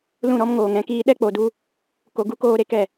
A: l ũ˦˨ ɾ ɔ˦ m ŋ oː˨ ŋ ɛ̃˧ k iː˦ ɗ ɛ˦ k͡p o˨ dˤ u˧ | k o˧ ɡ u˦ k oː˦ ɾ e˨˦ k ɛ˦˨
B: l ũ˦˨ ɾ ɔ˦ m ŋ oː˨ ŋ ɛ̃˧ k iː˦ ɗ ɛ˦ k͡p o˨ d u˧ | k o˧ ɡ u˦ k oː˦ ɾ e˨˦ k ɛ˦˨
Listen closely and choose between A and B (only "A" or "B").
B